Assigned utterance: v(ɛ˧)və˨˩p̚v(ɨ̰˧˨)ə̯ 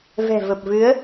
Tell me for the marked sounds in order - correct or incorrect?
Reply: incorrect: ɛ̤˨˩, incorrect: ɨ˨˦

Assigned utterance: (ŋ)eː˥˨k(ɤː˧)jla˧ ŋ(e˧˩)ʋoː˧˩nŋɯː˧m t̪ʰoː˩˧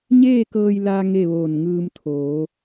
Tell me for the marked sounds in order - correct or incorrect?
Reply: incorrect: ɲ, correct, incorrect: e˥˨

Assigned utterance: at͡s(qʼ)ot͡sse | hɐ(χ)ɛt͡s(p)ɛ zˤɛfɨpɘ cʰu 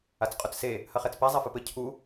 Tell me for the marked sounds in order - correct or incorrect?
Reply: correct, correct, correct

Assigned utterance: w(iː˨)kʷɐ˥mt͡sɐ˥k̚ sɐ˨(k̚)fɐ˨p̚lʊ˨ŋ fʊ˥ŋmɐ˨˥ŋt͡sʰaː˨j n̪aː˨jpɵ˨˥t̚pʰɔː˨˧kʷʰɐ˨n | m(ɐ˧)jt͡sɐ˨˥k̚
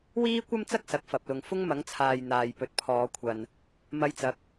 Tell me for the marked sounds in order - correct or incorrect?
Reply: incorrect: iː˥, correct, correct

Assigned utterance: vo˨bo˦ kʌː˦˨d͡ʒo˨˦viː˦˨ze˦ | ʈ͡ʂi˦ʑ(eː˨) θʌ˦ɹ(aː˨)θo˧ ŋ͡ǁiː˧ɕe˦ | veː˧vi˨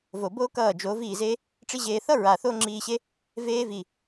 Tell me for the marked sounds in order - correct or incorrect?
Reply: incorrect: eː˧, correct

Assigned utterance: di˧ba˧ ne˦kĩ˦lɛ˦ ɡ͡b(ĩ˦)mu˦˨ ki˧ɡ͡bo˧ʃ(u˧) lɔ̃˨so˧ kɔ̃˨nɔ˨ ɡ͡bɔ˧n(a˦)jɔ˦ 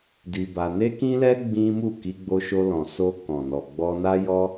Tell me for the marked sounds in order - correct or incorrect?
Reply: correct, incorrect: o˧, correct

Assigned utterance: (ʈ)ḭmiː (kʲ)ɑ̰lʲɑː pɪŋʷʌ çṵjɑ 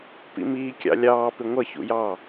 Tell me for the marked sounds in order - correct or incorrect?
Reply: incorrect: p, correct

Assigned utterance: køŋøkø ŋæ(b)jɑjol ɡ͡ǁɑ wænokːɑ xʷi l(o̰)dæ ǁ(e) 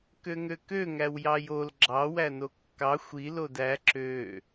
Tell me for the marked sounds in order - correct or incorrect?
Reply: incorrect: w, incorrect: o, incorrect: ø

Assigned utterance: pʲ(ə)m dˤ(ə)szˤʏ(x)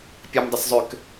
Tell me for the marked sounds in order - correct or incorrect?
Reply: correct, correct, incorrect: k

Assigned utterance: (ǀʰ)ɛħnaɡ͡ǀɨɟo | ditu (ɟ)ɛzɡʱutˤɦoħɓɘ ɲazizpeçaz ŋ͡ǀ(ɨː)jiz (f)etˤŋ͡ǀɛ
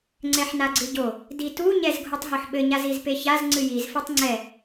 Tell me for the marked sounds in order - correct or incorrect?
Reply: incorrect: ŋ͡ǀ, incorrect: ɲ, incorrect: ɨ, correct

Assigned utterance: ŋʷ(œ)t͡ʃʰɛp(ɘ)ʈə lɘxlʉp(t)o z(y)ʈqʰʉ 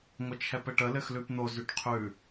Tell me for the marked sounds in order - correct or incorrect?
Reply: incorrect: ə, correct, incorrect: n̪, correct

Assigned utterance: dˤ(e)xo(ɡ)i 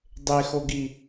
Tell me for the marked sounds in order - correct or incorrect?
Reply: correct, correct

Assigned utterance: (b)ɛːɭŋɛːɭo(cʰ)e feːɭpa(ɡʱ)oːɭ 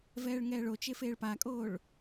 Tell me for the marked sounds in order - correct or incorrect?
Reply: incorrect: v, incorrect: t͡ʃ, incorrect: kʼ

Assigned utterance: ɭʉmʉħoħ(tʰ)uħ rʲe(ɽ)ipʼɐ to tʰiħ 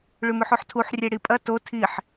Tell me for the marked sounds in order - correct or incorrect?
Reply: correct, correct

